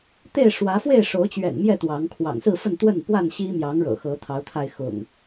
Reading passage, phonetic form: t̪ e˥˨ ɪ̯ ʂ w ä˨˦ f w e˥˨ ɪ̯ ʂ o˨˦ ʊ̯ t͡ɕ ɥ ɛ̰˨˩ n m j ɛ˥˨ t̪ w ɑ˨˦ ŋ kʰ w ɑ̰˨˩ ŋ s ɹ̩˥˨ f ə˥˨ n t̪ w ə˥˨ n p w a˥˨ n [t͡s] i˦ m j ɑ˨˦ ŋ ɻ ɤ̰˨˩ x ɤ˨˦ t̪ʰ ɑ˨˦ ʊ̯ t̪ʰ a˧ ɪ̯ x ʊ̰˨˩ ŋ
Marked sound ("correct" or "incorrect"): incorrect